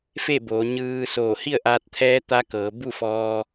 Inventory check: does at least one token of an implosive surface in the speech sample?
no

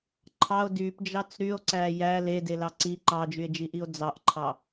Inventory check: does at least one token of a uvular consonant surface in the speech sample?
no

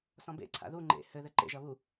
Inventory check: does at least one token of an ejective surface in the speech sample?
no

